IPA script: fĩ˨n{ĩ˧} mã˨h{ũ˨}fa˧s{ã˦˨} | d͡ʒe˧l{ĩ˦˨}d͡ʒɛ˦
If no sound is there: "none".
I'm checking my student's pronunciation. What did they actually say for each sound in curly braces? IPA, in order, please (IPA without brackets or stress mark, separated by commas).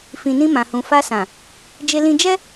ĩ˧, ũ˨, ã˨, ĩ˧